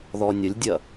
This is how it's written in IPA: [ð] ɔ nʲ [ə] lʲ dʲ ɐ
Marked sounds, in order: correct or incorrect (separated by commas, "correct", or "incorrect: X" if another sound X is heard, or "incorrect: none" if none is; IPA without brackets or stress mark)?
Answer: correct, correct